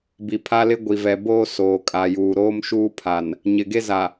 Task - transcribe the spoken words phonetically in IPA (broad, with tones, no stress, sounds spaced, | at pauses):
b i˨ pʰ a˦ l ɪ˦ ɡʷ i˨ v ɛ˨ b oː˦ s oː˨ kʼ a˨ j uː˨ ɾ oː˦ m ʃ uː˦ pʰ a˨ n | ɲ ɪ˨ ɡ e˦ z a˨